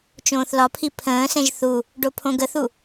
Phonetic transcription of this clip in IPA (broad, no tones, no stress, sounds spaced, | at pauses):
t͡ʃ õː θ l ɒ pʰ i pʰ ə̃ː s ɛ̃ ʒ θ u | ɖ o pʰ õ ɡ ə θ u